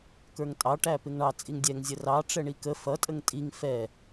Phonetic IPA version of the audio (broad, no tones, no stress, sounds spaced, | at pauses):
k ə˞ ŋ tʼ ɑ ʈ æ p ɪ ŋ ɳ ɑ t͡sʼ i ŋ dʲ ɛ ŋ zʲ ə r ɑ ʈ͡ʂ ɛ ɳ i k ə f ʌ tʼ ə ŋ tʼ i ŋ f ɛ